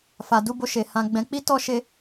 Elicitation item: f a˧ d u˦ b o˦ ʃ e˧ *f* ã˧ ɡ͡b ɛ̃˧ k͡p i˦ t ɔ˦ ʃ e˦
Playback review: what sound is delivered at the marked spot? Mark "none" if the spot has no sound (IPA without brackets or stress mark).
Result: h